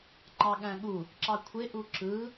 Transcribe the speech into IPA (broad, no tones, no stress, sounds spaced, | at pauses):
ŋ͡ǃ ɑ ɠ æ̃ ɠ u | ǁ ɑ kʷʰ e ʔ u ǁ ɯ